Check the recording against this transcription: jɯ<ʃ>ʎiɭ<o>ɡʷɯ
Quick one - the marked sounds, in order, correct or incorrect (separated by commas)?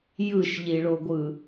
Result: correct, correct